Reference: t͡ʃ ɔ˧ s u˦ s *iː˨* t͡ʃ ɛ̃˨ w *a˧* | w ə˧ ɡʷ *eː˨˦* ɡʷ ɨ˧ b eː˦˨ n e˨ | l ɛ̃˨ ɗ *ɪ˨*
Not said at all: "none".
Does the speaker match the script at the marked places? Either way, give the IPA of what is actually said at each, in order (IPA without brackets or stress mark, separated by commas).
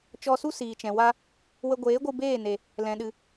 iː˨, a˧, eː˨˦, ɨ˨